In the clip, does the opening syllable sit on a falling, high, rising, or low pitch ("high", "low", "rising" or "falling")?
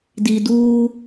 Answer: low